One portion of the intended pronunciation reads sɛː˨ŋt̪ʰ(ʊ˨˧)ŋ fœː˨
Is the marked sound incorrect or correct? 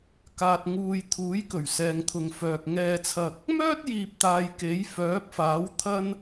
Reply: incorrect